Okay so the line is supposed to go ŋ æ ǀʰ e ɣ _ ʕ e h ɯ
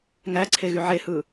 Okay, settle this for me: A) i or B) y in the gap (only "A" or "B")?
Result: B